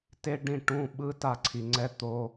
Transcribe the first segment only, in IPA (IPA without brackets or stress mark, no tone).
t